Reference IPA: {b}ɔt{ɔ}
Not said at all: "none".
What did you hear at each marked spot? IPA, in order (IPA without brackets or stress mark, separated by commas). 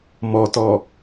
m, ɔ